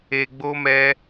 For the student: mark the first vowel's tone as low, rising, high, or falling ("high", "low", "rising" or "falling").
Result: low